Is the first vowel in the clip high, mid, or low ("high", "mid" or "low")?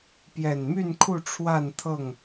mid